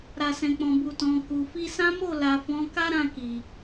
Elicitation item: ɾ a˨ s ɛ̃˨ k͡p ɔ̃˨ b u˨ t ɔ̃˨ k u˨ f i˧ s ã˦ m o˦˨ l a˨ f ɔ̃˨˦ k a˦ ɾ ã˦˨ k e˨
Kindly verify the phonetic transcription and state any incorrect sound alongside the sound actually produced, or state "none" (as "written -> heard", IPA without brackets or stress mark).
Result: e˨ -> i˨